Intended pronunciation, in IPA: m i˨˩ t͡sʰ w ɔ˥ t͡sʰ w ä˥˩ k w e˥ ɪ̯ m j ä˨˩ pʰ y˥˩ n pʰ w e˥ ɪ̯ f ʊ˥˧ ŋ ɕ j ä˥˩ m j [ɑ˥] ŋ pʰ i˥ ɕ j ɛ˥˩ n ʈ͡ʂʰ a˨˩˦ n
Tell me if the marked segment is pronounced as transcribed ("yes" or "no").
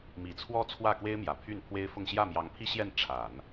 no